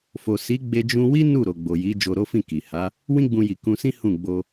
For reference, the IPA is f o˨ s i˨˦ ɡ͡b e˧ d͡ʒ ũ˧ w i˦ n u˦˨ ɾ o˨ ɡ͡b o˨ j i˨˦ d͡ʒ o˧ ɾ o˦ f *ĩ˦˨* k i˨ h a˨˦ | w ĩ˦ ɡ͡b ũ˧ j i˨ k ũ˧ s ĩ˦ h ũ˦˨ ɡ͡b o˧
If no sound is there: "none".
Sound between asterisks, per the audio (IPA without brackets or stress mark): ĩ˦˨